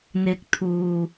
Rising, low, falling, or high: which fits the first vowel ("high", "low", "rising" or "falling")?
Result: low